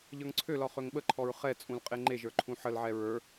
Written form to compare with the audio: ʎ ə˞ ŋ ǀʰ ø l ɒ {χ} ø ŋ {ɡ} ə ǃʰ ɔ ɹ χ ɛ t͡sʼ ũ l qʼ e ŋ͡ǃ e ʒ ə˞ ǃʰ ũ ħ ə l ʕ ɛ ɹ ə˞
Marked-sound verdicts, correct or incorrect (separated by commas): correct, incorrect